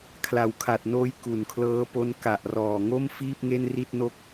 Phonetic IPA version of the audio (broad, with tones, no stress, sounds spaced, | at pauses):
kʰ l a˩˦ w kʰ a˨˩ t̚ n oː˦˥ j k u˨˩ n kʰ l ɤː˦˥ p o˦˥ n k a˨˩ ʔ r ɔː˨˩ ŋ o˥˩ m f iː˥˩ p̚ ŋ e˥˩ n r i˥˩ t̚ n o˥˩ k̚